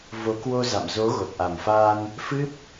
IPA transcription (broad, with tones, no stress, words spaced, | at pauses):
vo˨˦ kwo˧za̰˧˨m zo˨˦ ɣo˨˩t̚ʔa˨˩mfaː˧n | fɨ˦˥p̚